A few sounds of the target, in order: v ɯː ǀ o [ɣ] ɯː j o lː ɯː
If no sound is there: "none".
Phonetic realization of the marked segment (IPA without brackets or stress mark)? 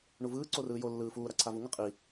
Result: r